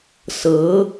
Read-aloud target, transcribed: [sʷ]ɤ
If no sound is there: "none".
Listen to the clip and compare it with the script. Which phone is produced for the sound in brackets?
s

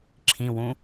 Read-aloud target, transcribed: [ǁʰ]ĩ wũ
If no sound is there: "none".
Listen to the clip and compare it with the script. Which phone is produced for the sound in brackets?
ǁʰ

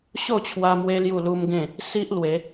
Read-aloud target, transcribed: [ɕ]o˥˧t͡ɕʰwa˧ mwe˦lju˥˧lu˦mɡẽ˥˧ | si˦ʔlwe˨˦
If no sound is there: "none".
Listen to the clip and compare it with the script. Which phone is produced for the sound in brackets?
ɕ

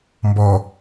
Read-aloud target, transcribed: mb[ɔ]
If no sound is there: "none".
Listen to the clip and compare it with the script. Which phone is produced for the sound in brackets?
ɔ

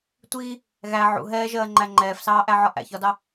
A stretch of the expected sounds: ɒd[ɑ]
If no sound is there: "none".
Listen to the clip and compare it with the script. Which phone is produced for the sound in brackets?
ɑ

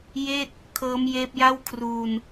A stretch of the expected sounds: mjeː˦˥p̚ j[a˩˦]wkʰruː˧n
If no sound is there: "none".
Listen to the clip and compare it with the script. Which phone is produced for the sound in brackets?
a˥˩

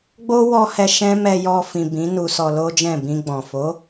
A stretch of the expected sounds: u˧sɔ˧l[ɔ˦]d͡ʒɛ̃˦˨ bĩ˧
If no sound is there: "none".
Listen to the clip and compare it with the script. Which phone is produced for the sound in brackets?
o˦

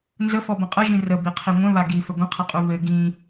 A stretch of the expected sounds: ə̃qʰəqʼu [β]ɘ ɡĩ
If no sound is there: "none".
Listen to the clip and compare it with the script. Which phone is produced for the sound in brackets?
β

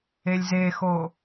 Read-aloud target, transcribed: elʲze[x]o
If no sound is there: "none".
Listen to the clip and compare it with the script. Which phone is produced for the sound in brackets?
x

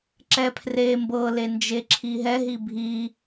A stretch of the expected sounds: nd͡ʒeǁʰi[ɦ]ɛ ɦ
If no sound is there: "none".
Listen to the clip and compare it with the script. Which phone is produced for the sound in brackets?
ɦ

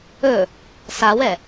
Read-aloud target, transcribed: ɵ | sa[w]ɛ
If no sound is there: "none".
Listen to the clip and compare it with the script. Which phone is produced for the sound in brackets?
w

